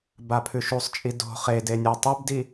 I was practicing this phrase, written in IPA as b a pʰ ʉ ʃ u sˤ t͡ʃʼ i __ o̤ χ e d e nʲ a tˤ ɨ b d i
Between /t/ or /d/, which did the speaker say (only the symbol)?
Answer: d